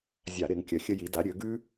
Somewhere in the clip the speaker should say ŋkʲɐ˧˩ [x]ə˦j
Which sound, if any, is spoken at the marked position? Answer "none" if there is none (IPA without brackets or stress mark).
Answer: xʲ